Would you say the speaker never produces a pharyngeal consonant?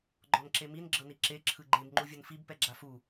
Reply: yes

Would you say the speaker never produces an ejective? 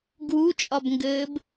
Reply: no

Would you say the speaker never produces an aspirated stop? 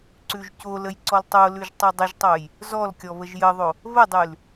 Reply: yes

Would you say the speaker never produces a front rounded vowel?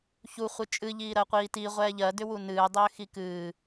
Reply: no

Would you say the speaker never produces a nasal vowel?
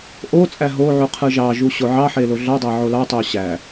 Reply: yes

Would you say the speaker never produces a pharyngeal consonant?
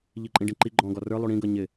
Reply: yes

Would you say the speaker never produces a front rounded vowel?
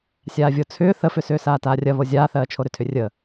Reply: no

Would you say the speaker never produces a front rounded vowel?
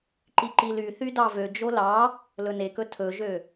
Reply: no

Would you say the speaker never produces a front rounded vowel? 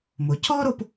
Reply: yes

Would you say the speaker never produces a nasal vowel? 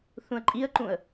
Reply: no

